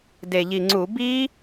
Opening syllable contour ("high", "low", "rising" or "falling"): low